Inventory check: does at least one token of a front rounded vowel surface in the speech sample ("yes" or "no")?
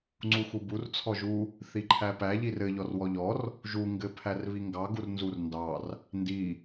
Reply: no